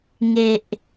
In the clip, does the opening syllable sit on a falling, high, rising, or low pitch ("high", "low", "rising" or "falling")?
low